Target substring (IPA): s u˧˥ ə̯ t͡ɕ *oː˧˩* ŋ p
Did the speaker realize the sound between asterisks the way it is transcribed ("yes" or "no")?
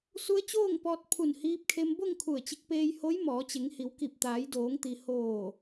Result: no